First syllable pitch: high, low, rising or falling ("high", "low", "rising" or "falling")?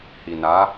low